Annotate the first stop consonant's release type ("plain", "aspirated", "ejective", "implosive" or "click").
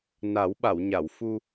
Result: implosive